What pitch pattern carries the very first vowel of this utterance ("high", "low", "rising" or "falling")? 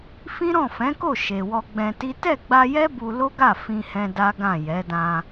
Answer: high